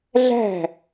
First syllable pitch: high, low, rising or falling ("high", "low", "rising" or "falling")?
falling